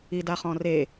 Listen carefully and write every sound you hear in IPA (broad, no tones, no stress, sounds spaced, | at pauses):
i d a χ ɔ̃ r e